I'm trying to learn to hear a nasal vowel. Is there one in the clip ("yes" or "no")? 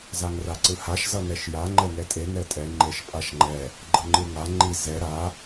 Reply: no